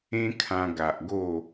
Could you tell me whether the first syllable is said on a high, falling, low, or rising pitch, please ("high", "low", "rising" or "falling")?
high